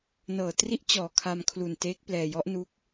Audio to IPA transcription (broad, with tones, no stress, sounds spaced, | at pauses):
n ɤː˨˩ t r i˦˥ ʔ t͡ɕ ɔː˨˩ kʰ a˧ m kʰ l u˨˩ n t eː˦˥ k̚ p l ɛː˧ j ɔ˦˥ ʔ n u˦˥ k̚